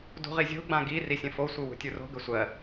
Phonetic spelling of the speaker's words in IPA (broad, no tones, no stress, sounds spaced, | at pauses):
d ṳ ʁ i zʲ o̤ ɡ͡b ã ɡ i r i sʲ ə̃ f o sʷ ɯ w ṳ tʲ u r o̤ ɡ ə sʷ ɜ